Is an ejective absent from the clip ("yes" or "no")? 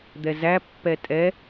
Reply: no